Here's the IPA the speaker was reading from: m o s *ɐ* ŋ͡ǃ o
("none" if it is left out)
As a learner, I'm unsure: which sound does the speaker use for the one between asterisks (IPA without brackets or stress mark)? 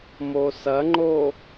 ɐ